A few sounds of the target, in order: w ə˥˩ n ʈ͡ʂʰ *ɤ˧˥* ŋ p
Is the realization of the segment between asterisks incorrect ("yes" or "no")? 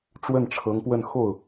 no